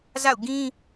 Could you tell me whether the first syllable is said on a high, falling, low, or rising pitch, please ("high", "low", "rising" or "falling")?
falling